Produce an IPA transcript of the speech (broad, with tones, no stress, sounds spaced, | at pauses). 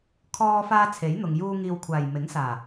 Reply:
kʰ ɔː˧ f aː˧ t͡sʰ e˨˥ j n̪ ʊ˨ ŋ j uː˧ ŋ iː˧ w kʷʰ aː˨˩ j m ɪ˨˥ ŋ s aː˨˩